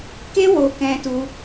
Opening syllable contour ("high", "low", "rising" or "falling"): high